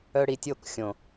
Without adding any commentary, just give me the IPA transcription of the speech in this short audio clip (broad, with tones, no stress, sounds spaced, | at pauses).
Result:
œ˧ ɽ i˨ tʲ o˦˨ k xʲ õ˨